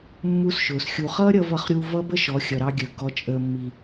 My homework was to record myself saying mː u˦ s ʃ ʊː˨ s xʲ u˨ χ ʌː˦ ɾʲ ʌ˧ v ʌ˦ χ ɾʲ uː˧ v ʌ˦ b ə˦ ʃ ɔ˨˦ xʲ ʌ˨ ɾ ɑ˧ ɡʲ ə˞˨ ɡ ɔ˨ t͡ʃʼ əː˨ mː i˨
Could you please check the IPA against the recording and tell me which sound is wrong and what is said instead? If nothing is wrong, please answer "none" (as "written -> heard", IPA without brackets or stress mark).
none